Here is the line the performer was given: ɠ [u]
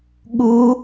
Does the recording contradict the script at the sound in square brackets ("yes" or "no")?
no